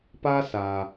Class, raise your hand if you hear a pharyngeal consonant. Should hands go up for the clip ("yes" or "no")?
no